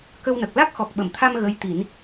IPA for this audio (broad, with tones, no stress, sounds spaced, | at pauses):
k ə˧ w n ə˨˩ k̚ l a˦˥ k̚ x ɔ˨˩ k̚ ɓ ə˨˩˨ m t̪ʰ a˧ m ɣ ə˧˥ j t̪ i˨˩˦ n